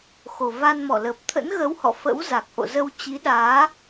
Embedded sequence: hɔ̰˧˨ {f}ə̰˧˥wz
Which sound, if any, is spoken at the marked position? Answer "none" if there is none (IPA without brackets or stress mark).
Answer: f